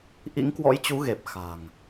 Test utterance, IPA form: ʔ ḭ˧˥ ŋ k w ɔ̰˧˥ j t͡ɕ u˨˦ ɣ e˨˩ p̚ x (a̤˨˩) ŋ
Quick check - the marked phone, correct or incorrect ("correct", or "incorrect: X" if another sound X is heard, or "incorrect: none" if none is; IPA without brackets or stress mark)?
correct